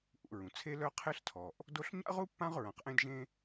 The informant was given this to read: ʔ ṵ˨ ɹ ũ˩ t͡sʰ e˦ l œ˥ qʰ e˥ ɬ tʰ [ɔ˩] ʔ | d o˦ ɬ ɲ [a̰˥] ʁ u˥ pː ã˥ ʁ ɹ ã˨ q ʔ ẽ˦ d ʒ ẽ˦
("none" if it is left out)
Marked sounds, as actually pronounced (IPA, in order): ɔ˩, a̰˥

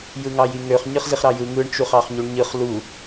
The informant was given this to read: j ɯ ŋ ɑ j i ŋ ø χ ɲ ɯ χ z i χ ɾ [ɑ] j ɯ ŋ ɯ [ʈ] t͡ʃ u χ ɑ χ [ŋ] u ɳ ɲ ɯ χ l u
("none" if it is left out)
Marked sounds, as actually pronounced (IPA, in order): ɑ, ɳ, ɲ

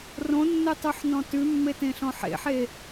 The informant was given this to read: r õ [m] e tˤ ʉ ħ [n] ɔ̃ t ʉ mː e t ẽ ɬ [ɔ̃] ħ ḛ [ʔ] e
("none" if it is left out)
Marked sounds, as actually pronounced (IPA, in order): nː, n, ɔ̃, ħ

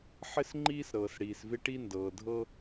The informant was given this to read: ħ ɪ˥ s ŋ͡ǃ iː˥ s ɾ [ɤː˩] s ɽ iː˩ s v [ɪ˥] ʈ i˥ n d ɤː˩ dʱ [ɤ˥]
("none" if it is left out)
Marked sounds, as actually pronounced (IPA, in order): ɤː˩, ɪ˥, ɤ˥

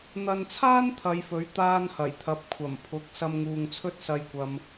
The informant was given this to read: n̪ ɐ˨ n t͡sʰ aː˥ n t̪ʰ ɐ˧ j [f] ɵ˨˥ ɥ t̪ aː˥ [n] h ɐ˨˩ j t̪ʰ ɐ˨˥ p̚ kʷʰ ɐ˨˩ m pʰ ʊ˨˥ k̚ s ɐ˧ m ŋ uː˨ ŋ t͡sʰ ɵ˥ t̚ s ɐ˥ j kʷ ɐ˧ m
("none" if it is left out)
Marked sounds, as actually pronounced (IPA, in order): f, n

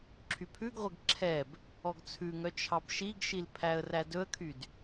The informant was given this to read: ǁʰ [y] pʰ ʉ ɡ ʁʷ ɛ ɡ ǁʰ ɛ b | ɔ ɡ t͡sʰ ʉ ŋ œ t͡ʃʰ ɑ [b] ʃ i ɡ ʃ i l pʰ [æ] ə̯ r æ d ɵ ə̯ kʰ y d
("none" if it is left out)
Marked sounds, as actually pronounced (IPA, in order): y, b, æ

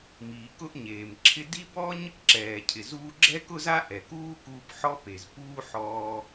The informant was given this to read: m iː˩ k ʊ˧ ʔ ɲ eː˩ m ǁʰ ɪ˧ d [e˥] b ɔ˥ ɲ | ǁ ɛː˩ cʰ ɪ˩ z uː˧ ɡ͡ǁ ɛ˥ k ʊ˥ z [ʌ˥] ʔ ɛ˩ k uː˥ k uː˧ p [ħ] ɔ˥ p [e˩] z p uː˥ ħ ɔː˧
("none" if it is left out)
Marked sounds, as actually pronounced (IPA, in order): i˥, a˥, ħ, e˩

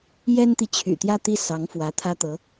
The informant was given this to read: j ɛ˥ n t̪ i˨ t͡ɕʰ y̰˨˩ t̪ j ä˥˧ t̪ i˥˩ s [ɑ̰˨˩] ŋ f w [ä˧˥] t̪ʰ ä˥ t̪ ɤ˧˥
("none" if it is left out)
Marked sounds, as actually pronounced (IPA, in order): ɑ˧˥, ä˧˥

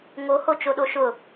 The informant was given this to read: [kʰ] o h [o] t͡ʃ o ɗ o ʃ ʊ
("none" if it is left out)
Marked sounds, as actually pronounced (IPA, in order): ŋ, o

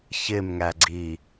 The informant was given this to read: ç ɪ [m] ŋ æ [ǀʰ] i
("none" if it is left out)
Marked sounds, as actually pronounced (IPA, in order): m, ɡ͡ǀ

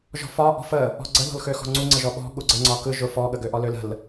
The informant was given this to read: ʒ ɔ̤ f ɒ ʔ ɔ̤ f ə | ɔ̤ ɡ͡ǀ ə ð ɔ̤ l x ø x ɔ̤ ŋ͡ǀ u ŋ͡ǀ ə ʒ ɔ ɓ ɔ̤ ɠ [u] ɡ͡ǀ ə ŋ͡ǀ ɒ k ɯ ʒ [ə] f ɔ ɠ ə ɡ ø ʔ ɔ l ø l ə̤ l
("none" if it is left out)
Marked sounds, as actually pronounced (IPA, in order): u, ʊ

